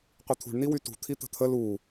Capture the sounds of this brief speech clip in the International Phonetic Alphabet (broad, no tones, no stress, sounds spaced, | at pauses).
qʷ i t̪ʰ ṳ ɳ n i w y t ṳ t̪ʰ i t̪ ə̤ t̪ʰ ə l u